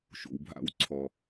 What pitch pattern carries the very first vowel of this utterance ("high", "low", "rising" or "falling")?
low